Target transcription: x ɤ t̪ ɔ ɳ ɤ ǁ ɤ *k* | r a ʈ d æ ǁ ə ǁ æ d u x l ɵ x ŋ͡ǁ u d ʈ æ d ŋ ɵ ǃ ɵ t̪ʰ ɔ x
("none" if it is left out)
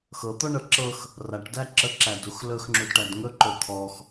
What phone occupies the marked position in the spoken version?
x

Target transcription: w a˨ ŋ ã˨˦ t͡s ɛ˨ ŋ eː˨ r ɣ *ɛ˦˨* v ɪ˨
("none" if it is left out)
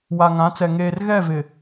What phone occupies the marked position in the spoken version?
ɛ˦˨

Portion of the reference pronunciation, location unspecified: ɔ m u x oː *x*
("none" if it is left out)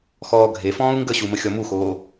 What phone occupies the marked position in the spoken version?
none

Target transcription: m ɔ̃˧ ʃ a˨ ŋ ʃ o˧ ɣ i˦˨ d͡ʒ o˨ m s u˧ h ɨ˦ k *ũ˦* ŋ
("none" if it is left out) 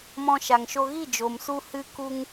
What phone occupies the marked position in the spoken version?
u˦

